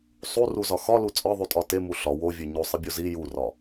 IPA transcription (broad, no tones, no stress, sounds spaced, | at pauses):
sˤ u r u z ɒ x ɒ l u t͡sʼ ɒ ðˤ u tʼ ɒ t e m u ɬ ɒ w o vʲ e ɲ o sˤ i bʲ o z i j u r ɒ